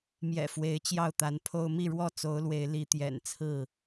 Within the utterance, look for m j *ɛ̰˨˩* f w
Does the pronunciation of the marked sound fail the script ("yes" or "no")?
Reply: no